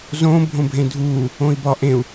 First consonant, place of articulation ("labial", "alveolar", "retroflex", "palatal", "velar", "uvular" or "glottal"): alveolar